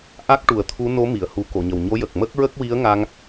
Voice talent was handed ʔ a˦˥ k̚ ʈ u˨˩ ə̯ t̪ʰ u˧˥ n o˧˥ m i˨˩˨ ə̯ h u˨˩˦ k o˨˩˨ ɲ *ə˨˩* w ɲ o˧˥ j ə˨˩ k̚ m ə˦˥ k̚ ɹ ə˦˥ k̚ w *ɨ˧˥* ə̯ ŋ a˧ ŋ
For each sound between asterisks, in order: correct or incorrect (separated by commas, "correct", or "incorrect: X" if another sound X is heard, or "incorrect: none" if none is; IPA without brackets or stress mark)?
correct, incorrect: i˧˥